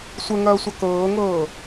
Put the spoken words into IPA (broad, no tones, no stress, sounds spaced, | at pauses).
sʷ ə ŋ ɐː sʷ a k ɤː ŋ ɤː